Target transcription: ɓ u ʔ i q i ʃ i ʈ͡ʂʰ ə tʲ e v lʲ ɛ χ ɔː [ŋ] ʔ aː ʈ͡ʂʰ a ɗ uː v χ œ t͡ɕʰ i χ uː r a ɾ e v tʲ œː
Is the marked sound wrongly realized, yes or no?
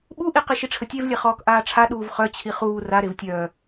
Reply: yes